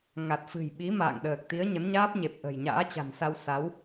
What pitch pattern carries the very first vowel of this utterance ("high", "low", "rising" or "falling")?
low